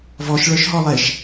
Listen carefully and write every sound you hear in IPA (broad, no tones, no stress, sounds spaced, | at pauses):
v ɔ ʃ ɭ ə˞ ʃ ɦ ɔ lˠ e ʃ